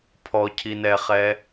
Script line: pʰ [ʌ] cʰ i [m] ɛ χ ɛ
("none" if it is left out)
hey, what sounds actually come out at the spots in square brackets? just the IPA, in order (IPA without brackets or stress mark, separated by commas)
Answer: ɔ, n